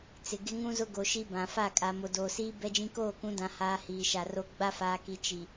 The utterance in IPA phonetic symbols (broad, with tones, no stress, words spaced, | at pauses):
t͡sɪ˨ ɡɪ˦ŋũ˦zʊ˦ ɡo˨ʃi˦bã˨ fa˦˨ kʼa˨ mo˨doː˨siː˦ bɛ˦d͡ʒĩ˦ koː˦˨kũ˨˦dã˨ haː˦hiː˨ʃa˨ro˦ ɡ͡ba˦faː˨ki˨ t͡ʃi˨